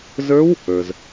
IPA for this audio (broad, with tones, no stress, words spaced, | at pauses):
zə˞˦˥w | ə˞˩z